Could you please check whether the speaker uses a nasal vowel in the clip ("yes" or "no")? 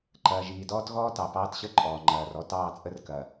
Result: no